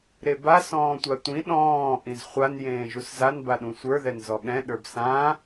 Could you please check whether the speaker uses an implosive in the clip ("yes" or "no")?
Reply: yes